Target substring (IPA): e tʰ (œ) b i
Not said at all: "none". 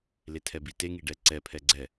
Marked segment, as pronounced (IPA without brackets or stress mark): ɛ